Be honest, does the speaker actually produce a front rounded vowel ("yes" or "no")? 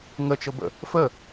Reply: no